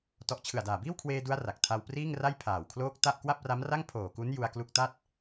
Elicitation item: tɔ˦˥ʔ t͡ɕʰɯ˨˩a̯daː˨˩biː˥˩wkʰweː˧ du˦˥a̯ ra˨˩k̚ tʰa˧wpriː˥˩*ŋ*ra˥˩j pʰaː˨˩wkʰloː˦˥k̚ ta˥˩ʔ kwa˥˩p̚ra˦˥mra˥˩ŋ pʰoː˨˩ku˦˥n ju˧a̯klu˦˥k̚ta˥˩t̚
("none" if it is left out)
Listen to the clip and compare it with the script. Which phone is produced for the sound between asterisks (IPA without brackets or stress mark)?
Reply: ŋ